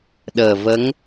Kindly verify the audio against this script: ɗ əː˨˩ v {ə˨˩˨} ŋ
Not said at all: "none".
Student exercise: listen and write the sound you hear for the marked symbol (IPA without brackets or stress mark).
ə˧˥